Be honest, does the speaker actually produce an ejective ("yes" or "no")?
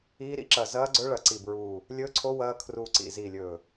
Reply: no